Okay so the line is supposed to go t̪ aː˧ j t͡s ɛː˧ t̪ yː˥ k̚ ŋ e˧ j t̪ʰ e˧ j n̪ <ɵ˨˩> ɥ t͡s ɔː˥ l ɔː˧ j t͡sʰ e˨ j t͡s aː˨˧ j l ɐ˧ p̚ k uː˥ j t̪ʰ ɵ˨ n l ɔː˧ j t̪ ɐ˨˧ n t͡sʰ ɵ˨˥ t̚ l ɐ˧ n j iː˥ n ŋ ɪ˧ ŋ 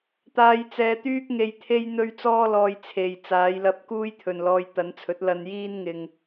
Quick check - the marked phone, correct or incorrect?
incorrect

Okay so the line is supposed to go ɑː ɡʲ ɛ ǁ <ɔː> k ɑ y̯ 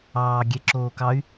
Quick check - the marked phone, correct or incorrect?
incorrect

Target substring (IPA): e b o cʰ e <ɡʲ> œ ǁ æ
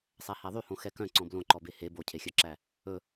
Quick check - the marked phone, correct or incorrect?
incorrect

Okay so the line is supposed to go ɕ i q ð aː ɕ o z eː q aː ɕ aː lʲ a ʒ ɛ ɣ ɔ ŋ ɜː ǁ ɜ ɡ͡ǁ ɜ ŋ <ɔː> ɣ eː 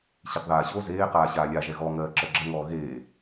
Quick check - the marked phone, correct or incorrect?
correct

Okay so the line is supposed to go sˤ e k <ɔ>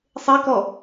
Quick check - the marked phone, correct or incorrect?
correct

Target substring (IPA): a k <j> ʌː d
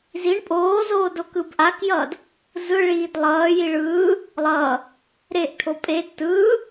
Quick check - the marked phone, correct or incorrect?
correct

